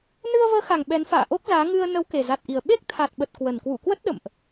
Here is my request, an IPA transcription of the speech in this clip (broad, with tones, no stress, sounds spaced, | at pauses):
n ɨ˧ ə̯ v əː˨˦ x a˨˩ ŋ ɓ ɛ˨˦ n f a̰ː˧˨ ʔ o˦˥ k̚ z aː˨˦ ŋ ɨ˧ ə̯ n ə˨˦ w k e˨˩ z a˨˩ t̚ ʔ i˨˩ ə̯ ɓ e˦˥ k̚ t̪ʰ a˨˩ t̚ ɓ ə˨˩ t̚ k w ə˨˩ n k w ṵ˧˨ k w ə˦˥ t̚ ɗ ə̰˧˨ m ʔ